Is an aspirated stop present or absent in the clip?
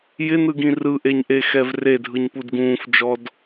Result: absent